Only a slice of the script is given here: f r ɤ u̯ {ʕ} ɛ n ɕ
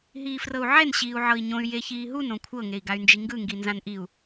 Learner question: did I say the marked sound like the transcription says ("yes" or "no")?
yes